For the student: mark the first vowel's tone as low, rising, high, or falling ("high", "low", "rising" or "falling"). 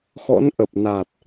rising